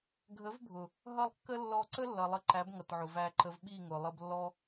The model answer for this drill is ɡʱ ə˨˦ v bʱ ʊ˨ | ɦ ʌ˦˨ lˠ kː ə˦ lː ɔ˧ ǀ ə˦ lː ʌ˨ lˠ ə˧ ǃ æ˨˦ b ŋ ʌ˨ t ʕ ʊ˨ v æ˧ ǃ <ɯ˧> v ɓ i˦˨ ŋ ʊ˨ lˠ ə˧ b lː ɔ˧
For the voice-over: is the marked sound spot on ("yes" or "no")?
no